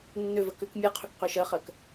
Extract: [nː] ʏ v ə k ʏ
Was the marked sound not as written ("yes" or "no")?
no